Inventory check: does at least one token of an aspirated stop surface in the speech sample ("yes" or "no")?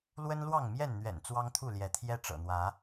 yes